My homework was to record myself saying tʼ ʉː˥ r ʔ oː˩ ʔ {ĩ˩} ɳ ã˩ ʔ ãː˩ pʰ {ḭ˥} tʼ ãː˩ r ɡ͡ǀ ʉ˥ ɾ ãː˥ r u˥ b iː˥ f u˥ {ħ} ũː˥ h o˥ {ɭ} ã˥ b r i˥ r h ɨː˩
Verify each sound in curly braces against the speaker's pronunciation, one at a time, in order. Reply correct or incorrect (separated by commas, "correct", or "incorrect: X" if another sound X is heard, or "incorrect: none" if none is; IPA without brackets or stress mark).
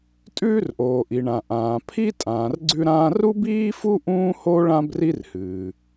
incorrect: i˩, incorrect: i˥, incorrect: ʔ, correct